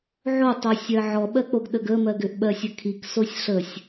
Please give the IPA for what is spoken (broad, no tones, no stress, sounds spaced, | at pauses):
ʕ o tˤ o sʲ ɜ ʕ ɔ ɓ ɜ k͡p o ɡ ɗ ə ɡ ə m ɜ ɡ ʏ ʔ ɓ ɜ sʲ ə kʰ i k s o sʲ ɬ ə sʲ